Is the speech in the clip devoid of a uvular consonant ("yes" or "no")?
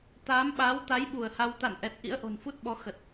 yes